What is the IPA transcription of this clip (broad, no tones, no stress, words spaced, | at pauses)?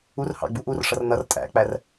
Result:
urhɑ̰ɡ͡bu ʔurʂʌr nʌr tʼæ̰k͡pær